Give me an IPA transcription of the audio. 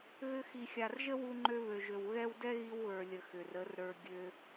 ɣ ʏ˧ x i˨ xʲ a˨ r ʒ ə˦ w u˧ ŋ͡ǃ ø˧ β ø˨ ʒ ø˨ w ɣ ɛ˧ w d ɛ˦ ɣ i˧ w ɣ ə˞˨ lʲ ə˨ x ʏ˨ r ə˨˦ r ɾ ə˞˧ ɡʲ ø˧

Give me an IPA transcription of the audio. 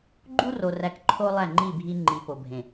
ɡ͡ǃ u˦ r o˨ r æ˨ k ǃʰ o˦ lˠ æ˦˨ ŋ͡ǃ i˦˨ bʱ i˦ ŋ͡ǃ i˨ p o˨ bʱ ẽ˨

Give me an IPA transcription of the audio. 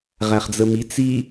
ʁ æ χ d͡z ə m i t͡s i

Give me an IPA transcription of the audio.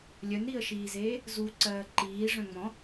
lʲ œ n ɾ i ə̯ ʃ iː z eː | z u ǀ ɜː ǃ iː ʐ œ̃ ŋ͡m ɔ̃

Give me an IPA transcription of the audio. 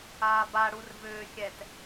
aː b a ɽ u r v ʏː xʲ ɛ t

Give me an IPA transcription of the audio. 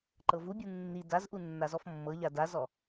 ǃ ɤ v u bʲ u nː i d a z ʔ u nː a z ɔ f mː ɤ ʎ a d a z ɔ

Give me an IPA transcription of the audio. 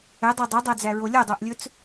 ɛ dˤ œ dˤ œ dˤ æ d͡z æ ɹ o lʲ o dˤ o ʔ lʲ ɵ t͡s

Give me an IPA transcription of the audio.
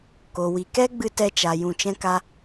k o˨ w i˨ k ɛ˦ ɡ͡b ɨ˧ t ɛ˧ t͡ʃ a˨ j ũ˧ t͡ʃ ɛ̃˦ k a˦

